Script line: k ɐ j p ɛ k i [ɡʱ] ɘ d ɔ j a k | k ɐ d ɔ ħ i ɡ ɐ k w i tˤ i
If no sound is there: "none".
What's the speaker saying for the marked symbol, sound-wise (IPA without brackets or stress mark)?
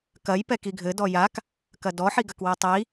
ɡʱ